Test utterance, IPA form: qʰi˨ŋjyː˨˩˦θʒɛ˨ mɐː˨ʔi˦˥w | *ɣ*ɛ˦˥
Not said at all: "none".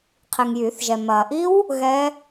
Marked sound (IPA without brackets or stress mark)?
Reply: ɣ